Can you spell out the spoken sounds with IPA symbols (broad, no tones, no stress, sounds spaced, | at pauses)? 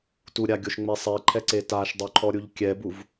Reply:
t u ɾʲ a ɡʲ o ʃ ŋ͡m e sˤ i ǃʰ ɛ ǀ e t a ʃ dˤ o ǃʰ ɔ ɾʲ u ʎ kʲ ɛ b u v